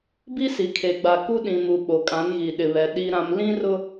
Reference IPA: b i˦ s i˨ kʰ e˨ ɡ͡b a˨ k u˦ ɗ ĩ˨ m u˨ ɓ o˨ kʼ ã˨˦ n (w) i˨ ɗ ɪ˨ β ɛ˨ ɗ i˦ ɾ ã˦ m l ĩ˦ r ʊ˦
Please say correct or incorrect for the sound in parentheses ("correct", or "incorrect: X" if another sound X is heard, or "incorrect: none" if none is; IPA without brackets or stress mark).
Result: incorrect: ɣ